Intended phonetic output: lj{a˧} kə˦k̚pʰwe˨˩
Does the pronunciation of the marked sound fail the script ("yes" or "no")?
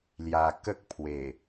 yes